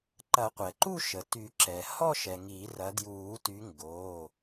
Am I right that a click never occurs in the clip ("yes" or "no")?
no